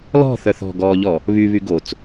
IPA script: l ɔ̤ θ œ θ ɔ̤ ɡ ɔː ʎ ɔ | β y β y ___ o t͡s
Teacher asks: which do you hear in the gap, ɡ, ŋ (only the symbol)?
ɡ